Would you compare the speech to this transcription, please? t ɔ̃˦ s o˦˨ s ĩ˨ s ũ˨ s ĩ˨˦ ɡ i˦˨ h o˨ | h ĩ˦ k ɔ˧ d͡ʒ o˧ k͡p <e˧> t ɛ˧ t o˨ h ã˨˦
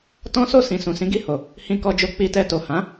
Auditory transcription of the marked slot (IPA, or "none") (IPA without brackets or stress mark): i˧